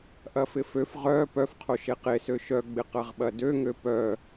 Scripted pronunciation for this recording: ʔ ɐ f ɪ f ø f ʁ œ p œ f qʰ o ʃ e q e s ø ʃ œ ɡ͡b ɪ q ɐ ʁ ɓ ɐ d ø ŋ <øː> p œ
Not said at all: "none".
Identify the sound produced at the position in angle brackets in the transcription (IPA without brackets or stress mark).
ø